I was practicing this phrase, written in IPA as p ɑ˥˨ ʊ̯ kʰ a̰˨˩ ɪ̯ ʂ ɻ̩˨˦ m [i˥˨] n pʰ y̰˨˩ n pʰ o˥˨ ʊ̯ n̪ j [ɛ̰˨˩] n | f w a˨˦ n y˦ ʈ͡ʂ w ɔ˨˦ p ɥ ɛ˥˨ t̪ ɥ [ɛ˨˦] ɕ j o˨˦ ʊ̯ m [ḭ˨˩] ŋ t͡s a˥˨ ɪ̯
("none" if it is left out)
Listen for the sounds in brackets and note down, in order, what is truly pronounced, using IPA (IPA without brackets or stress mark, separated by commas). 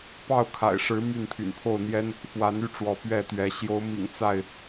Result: y˥˨, ɛ˦, ɛ˨˦, ḭ˨˩